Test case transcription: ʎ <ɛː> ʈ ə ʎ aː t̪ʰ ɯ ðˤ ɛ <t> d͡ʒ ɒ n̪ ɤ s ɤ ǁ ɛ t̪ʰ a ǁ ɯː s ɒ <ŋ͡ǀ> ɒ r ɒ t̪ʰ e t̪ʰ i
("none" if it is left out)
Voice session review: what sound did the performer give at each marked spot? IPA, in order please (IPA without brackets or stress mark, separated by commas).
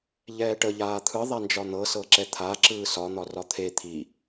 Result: ɛː, n, n̪